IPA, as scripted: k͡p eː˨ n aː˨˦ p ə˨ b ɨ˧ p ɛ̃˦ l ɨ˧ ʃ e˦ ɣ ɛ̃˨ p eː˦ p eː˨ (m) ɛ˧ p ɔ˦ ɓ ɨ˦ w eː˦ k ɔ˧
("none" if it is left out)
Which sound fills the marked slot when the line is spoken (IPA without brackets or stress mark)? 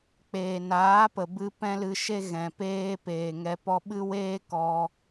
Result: ŋ